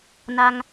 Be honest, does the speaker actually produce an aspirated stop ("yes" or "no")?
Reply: no